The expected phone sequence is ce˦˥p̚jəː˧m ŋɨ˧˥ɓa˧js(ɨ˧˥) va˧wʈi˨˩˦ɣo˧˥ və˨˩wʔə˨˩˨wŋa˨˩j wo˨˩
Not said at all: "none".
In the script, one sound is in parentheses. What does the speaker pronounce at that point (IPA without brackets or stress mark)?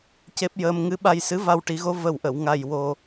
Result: ɨ˧˥